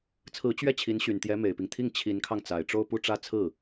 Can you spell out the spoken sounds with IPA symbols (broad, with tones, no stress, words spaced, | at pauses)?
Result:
t͡sʰɹ̩˧˥ t͡ɕɥɛ˥˩t͡ɕʰi˧˥nɕy˨˩n t̪jɛ˧˥me˨˩ɪ̯pi˦ŋ t̪ʰi˥˩ŋ t͡ɕʰi˧˥nkʰɑ˧ŋ t͡sa˨˩ɪ̯ʈ͡ʂo˥˧ʊ̯pu˥˧ ʈ͡ʂä˥˧t͡sʰɹ̩˥˩